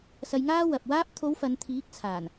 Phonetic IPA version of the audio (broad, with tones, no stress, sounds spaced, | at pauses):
s ɐ˧ j ŋ aː˥ w ɐ˨ p̚ w aː˧ p̚ t̪ʰ o˨˧ w f ɐ˨˧ n t̪ʰ iː˨˥ k̚ t͡sʰ aː˨˩ n